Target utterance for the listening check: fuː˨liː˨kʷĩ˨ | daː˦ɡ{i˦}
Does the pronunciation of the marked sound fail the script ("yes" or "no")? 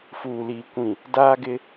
yes